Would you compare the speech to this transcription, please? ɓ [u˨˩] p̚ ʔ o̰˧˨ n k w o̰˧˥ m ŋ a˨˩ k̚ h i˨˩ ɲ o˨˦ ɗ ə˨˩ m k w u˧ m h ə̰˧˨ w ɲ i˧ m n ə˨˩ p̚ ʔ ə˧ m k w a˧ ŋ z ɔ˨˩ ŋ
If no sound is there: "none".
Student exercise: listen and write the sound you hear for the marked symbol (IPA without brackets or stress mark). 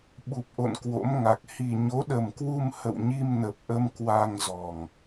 u˨˩